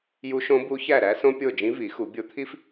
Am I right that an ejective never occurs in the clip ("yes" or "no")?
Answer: yes